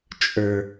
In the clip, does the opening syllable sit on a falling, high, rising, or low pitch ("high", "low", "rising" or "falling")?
low